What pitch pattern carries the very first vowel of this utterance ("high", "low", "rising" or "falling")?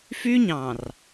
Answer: high